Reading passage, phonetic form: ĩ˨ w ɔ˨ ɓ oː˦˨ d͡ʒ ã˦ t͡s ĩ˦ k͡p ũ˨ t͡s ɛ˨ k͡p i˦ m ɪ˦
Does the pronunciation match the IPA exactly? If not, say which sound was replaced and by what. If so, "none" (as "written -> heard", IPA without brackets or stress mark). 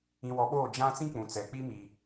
ɪ˦ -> i˦